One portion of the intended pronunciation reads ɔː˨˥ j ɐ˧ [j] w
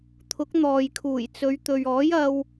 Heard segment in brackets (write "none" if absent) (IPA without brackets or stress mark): none